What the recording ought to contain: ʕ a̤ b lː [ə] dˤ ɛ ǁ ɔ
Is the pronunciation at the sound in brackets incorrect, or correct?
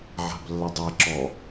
correct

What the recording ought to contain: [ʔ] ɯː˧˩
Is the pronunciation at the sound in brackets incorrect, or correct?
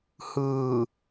incorrect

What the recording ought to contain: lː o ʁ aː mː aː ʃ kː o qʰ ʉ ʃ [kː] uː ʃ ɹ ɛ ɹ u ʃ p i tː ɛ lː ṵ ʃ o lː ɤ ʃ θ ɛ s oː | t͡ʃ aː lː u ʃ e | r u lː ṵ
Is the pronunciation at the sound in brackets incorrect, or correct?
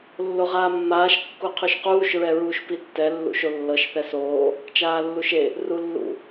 incorrect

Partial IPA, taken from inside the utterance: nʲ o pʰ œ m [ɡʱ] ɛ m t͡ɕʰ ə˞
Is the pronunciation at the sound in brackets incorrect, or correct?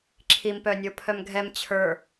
correct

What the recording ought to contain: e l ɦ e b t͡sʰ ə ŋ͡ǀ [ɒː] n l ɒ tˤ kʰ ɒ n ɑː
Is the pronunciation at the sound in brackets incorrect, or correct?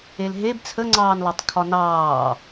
incorrect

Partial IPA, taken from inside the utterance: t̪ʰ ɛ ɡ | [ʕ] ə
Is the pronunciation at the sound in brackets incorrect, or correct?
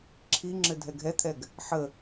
incorrect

